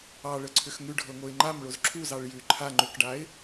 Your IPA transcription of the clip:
ɑ ɭ ə ǀʰ ʏ x ŋ ʉ ɖʱ ɤ ŋ o ɪ̯ ŋ͡ǃ a m ɭ o z ǁʰ u z ɑ ɭ j ʉ ǃʰ a ŋ͡ǃ ʏ k ɖ a ɪ̯

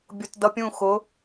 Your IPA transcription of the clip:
bʲ ʊ˨ t d ʌ˨ pʲ ũ˦˨ x ʊ˨˦

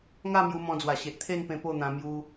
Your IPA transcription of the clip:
ŋ a˥˧ m j u˧ m ɔ̃˧ d͡z w a˨˩ ɕ e˨ ʔ t̪ʰ e˥˧ n p ẽ˧ p o˥˧ n̪ ã˧ m j u˧

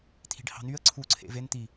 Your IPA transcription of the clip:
t̪ʰ i̤ ɖ h ɑ̤ n y ə̯ ǀʰ u ǀʰ ḛ v e n t̪ i

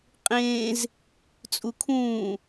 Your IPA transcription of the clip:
qʼ ẽː z | t͡sʼ u kʰ ũː

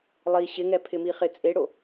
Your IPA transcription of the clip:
lˠ i ɕ ɪ ŋ ɛ pʰ ɪ m i χ ɪ t͡sʼ e ɽ o

